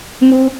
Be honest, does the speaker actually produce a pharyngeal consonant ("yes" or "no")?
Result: no